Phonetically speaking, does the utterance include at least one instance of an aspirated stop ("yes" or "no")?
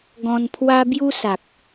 yes